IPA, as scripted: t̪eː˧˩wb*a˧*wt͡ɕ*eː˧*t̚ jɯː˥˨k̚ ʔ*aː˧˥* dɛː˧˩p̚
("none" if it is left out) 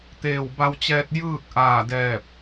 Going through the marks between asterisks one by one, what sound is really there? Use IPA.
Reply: a˧, ɛː˧, aː˧˩

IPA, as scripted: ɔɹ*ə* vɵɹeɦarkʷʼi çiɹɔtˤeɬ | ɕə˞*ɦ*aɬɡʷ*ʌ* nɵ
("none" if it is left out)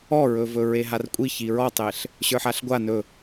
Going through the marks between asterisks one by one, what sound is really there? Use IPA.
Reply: ɵ, ħ, a

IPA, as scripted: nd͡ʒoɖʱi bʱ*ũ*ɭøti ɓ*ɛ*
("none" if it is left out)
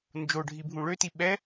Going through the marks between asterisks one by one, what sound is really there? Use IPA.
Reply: ũ, ɛ

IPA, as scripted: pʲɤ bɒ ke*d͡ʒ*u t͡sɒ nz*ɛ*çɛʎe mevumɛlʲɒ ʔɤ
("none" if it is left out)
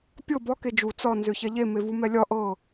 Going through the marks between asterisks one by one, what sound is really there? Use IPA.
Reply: d͡ʒ, ø

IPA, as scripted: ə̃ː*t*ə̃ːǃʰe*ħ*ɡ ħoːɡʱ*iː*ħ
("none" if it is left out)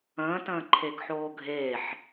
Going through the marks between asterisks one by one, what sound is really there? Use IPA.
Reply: t, none, eː

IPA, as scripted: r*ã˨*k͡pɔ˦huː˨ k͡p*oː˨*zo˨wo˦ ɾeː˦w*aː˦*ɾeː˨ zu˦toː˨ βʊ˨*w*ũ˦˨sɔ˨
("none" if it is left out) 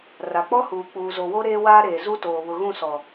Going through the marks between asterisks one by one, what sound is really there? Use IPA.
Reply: a˨, uː˨, aː˦, ɣ

